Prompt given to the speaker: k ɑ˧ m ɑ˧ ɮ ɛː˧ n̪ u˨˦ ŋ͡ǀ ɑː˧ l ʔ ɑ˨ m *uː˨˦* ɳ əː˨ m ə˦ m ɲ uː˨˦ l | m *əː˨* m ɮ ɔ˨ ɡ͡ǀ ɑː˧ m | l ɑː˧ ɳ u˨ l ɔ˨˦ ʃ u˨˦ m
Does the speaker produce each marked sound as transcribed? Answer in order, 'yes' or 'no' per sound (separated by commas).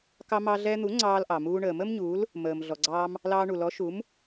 no, yes